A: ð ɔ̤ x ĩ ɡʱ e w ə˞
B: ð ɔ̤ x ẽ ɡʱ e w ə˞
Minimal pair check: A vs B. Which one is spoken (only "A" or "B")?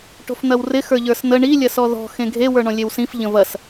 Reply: B